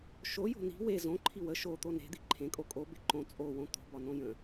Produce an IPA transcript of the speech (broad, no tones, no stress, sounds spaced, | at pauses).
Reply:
ʃ o j o̤ n i̤ w e z õ ǃʰ i w ə ʃ o t̪ o n e̤ d̪ i ǃʰ ẽ kʼ o kʼ o b e ǃ õ t͡sʼ o w õ t̪ o̤ b ɒ n õ j ə̃